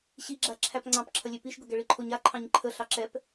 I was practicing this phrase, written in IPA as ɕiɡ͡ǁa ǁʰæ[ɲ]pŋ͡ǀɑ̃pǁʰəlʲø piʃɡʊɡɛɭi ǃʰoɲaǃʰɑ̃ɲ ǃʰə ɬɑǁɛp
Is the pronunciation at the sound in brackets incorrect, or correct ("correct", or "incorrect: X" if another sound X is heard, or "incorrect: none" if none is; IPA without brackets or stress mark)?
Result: incorrect: none